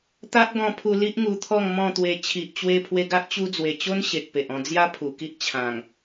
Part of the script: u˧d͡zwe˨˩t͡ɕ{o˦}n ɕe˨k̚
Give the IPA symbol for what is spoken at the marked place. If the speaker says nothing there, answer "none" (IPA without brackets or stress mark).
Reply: o˦